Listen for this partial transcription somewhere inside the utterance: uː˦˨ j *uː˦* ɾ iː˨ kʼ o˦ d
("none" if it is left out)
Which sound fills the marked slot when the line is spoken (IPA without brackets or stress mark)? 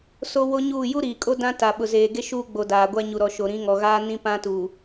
u˦